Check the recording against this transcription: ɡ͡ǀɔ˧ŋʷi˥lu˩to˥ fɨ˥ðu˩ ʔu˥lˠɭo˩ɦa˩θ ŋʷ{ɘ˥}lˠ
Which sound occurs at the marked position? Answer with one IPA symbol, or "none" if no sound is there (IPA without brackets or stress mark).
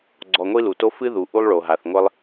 ɘ˥